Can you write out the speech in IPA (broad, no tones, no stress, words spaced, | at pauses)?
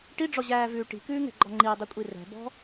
ʈiɖ͡ʐɔʑæːvʉː ʈi̤kʉːŋɛ̤ɡ͡ǃɔ ŋ͡ǃidˤykʷʼi rɛ̤bɔ̤